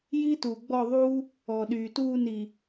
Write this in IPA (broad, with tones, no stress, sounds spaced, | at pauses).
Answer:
j i˦ t uː˨ ɡ͡b ɔ˦˨ ðˤ uː˦ | ɔː˨ ɗ yː˨ t uː˦˨ n i˨